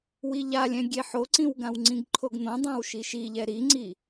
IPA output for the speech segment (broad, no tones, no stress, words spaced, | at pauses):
wiʎalʲɛ̃ ɡʲeħoǀĩwɡãw ŋ͡ǀĩɡǃʰoɡn̪õdˤãw ʃiʃiʎɛ ɾiŋ͡ǀi